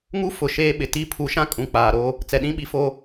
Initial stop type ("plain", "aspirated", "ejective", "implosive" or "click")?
implosive